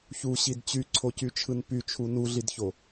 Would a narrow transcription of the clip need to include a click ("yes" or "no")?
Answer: yes